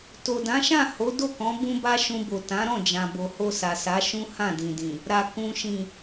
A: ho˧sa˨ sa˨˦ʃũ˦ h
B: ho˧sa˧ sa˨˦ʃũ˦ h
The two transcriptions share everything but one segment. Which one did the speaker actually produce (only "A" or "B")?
A